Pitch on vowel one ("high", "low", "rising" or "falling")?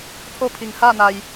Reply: falling